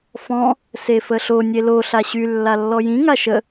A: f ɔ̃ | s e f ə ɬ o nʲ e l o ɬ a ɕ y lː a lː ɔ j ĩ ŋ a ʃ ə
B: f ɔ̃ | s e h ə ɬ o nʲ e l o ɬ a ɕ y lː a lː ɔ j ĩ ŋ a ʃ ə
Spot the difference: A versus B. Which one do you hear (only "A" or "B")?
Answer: A